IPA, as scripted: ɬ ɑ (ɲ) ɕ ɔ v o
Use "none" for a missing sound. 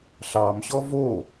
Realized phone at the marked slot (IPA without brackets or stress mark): m